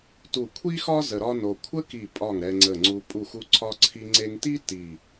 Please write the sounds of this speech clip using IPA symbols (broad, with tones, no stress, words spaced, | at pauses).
tu˧˩kʷʰi˥xɒ˥ zə˧ɾɒ˥no˧ kʷʰə˥ki˧˩pʼɒ˧˩ŋ ɾɛ˧ŋ͡ǀə˧˩ŋ͡ǀu˧ pʼu˧˩xu˧ǀʰɒ˧ ǀʰi˧ŋ͡ǀe˧ŋti˥ ti˧˩